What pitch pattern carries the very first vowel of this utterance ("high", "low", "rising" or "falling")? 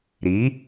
rising